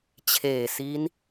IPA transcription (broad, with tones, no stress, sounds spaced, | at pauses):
t͡ɕʰ eː˨˩ s i˦˥ n